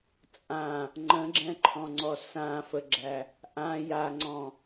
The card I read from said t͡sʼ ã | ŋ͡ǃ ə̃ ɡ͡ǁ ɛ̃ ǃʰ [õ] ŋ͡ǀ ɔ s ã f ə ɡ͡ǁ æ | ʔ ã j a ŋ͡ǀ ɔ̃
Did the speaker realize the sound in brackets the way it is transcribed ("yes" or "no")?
no